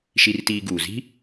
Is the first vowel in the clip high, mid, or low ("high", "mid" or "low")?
high